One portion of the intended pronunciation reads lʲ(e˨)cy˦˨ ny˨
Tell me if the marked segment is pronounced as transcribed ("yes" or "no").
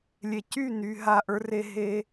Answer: yes